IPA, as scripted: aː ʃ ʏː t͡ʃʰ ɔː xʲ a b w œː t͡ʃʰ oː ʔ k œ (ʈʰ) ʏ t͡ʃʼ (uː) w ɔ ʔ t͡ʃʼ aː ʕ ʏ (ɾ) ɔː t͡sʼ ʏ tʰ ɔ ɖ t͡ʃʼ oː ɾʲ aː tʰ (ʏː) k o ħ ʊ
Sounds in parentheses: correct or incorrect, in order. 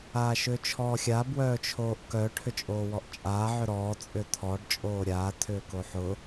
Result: correct, incorrect, correct, correct

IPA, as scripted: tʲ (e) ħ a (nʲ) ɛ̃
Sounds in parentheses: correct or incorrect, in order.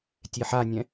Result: correct, correct

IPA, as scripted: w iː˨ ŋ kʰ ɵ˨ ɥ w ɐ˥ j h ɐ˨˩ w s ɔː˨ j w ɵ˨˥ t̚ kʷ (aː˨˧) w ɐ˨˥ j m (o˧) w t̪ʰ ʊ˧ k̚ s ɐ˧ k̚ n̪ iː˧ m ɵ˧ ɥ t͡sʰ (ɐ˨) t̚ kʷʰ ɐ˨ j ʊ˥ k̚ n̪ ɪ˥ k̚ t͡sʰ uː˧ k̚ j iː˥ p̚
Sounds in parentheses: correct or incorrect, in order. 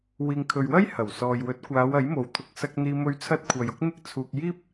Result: correct, incorrect, incorrect

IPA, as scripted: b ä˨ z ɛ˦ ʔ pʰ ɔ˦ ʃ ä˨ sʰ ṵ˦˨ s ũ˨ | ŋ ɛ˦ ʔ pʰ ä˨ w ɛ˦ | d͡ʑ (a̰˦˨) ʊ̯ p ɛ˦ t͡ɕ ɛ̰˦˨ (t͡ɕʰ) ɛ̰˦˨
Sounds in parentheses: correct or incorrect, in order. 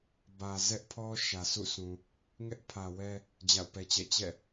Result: correct, incorrect

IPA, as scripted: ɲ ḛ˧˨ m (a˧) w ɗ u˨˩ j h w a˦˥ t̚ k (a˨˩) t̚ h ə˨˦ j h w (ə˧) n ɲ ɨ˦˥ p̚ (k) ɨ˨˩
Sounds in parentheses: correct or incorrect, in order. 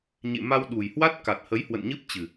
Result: correct, correct, incorrect, incorrect

